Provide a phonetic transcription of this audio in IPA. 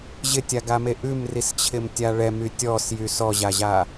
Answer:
ʑ ɪ tʲ a ɡ a m e ʔ ʉ m r i s t͡ɕʰ ɪ m tʲ a ɭ ɛ m y tʲ ɔ s j y s ɔ ʑ a ʑ a

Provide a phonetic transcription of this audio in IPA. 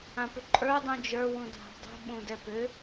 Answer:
ã p ʏ ǃʼ ə˞ dˤ ũ d͡ʒ ə˞ w ũ dʱ a̤ dˤ ṳ ɓ ũ d ɛ p ʏ

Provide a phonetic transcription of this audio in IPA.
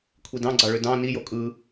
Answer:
kʷʰ i d ɑ̃ ɡ͡ǀ ɑ ɭ ø d ɑ̃ n i j o kʼ ɯ

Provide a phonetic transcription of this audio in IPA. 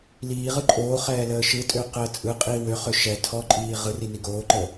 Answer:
l iː ʁ ɯ ǃʼ oː χ ɛː l əː ʃ ɯ tʼ ø q əː t͡sʼ ɯ qʼ iː w ø χ ø ʃ ɛ tʰ ɔ ǃʼ iː ʁ ɯ r i n i ɡ oː ǃ əː

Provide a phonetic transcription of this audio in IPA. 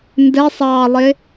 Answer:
n d ɛ sˤ ɑː lˠ ɪ

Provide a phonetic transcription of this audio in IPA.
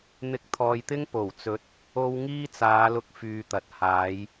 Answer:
n̪ ɪ˧ k̚ t̪ʰ ɔː˨ j t̪ ɪ˥ ŋ p o˨˩ w t͡s ɵ˨˥ t̚ | o˥ w ŋ iː˥ t͡s aː˨˧ l ʊ˧ k̚ f yː˧ t̪ ɐ˨ t̚ h aː˨˥ j

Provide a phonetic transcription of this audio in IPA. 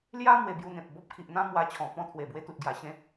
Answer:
l j a˦ m w e˧ b j u˧ n̪ ẽ˨ p̚ b ɔ˦ p̚ kʰ i˨ ʔ n̪ ã˦ m w a˧ t͡ɕʰ ɔ̃˨˩ p ɔ̃˧ t̪ʰ w e˨˩ b w e˧ t̪ u˨ t̚ ɡ j a˨˩ ɕ ẽ˧

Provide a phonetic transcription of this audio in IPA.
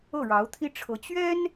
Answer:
ɤ˥˩ ɻ ɑ˧˥ ʊ̯ t̪ʰ i˥ ʈ͡ʂʰ ɤ˧˥ t͡ɕ ɥ ɛ˥ n

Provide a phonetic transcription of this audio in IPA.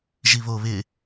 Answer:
ʒ i β o β ɪ

